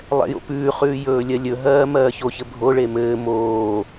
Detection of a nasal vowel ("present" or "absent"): absent